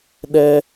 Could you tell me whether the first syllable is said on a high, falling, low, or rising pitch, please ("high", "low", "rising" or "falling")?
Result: high